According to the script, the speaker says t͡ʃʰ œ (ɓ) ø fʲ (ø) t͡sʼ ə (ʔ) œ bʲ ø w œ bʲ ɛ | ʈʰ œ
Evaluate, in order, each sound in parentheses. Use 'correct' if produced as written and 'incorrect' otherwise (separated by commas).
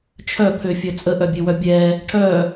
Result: incorrect, incorrect, correct